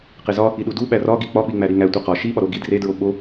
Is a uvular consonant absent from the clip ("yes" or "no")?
no